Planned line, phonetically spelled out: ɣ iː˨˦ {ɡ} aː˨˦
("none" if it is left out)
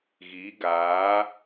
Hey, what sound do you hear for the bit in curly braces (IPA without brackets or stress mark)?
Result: ɡ